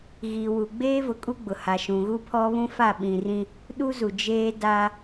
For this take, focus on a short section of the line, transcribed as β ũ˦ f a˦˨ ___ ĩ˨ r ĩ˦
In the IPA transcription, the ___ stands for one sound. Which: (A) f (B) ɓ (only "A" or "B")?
B